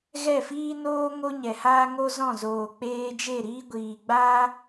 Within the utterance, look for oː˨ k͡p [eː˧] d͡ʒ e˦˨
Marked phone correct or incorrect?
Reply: correct